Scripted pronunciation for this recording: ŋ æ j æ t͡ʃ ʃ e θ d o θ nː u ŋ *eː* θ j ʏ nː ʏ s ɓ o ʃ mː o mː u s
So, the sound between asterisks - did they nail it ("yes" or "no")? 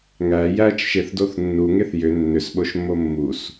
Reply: no